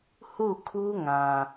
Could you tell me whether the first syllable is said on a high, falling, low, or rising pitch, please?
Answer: falling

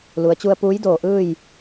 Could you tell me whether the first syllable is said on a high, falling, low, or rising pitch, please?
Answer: low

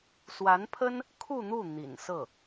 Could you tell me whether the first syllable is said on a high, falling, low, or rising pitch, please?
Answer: rising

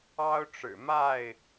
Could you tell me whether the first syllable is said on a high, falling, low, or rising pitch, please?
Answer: high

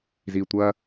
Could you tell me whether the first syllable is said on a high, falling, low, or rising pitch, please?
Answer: low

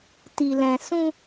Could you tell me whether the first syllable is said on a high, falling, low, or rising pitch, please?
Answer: low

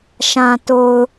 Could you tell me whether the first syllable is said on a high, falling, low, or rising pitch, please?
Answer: low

